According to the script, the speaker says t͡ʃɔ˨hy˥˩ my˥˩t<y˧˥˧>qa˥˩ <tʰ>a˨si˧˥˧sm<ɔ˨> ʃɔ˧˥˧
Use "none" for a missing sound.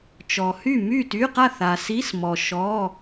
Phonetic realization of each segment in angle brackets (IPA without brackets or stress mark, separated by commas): y˧˥˧, θ, ɔ˨